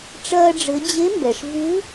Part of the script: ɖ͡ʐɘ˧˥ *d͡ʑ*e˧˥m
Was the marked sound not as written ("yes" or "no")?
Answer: no